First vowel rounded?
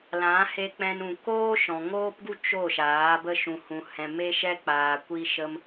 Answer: no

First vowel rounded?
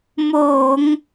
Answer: yes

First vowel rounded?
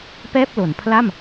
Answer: no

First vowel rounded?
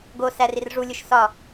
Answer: yes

